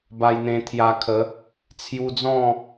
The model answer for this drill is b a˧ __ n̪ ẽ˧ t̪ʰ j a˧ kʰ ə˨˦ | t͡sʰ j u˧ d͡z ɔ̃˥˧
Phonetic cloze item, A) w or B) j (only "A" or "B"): B